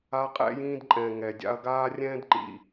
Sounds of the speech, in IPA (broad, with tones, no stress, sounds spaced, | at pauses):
a˦ qʼ ɛ̰˦ j ĩː˦ d ǃʼ ɛ̃˨ ŋ ɛ˨ dʲ a̰˦ ɐ̯ ɡ aː˦ rʲ ɛ̃ː˦ d ǃ ḭ˨